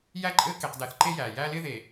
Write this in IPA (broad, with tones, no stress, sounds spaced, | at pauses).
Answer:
j æ˦ ǃʼ ɘː˦ k e˦ q d æ˦ θ ǃ e˦ j æː˨ j æː˦ l ɪː˦ ð e˨